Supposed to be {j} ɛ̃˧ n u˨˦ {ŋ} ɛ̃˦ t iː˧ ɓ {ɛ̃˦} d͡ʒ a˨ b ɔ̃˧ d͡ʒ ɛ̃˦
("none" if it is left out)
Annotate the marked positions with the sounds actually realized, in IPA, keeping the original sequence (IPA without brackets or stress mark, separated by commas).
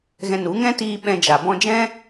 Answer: ɣ, ŋ, ɛ̃˧